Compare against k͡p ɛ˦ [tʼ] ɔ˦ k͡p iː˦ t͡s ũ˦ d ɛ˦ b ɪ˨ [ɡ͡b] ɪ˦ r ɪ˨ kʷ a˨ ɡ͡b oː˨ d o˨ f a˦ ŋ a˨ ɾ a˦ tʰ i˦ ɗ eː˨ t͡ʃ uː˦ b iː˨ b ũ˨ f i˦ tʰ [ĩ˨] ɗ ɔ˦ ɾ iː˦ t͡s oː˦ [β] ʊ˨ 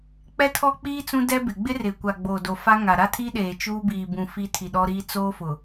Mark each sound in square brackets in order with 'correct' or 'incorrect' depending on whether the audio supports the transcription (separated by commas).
incorrect, correct, incorrect, incorrect